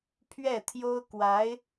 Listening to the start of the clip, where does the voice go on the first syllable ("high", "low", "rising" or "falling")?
falling